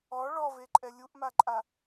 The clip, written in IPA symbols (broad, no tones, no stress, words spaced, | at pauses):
ɔ ɭɔveǃʼɛ lʲuʔmaǃʼa